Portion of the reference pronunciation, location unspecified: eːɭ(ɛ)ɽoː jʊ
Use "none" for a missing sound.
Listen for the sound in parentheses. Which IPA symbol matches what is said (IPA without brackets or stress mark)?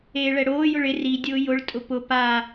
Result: ɛ